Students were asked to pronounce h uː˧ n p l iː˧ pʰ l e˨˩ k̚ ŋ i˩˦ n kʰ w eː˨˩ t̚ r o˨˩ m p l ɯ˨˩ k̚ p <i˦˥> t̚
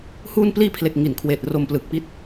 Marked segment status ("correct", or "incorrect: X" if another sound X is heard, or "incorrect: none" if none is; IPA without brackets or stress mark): correct